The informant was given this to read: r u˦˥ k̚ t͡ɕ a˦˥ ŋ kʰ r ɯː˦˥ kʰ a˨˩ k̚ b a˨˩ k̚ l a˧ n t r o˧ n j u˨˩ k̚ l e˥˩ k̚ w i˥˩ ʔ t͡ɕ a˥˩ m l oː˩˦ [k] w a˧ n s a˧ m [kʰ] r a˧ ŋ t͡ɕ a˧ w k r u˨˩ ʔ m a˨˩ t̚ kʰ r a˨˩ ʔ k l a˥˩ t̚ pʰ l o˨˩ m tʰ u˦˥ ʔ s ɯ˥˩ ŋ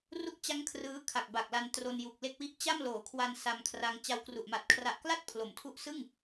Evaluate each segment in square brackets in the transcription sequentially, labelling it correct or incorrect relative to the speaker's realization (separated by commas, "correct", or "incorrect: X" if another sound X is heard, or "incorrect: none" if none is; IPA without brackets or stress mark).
incorrect: kʰ, correct